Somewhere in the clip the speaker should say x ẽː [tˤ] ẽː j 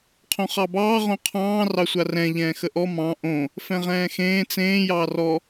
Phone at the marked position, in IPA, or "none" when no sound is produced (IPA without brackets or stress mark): t͡s